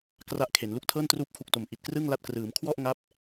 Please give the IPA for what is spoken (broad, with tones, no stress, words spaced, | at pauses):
kra˥˩ʔkʰe˩˦n lu˦˥k̚tʰɤː˥˩n truː˦˥p̚kʰu˨˩k̚to˨˩m ʔi˨˩t̚krɯ˥˩ŋla˦˥t̚ krɯː˩˦mkʰwɔ˥˩ʔŋa˦˥p̚